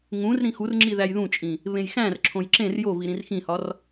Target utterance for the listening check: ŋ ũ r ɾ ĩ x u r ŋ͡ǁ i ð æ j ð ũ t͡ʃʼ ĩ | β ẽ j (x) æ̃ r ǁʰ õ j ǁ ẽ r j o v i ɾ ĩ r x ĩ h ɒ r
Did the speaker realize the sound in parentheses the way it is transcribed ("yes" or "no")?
yes